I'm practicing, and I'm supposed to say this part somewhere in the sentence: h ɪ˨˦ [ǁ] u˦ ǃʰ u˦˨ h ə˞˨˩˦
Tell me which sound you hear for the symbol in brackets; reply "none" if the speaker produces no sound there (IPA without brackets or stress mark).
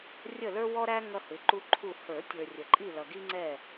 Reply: ǃ